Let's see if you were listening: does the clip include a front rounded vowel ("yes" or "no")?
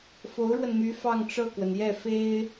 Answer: yes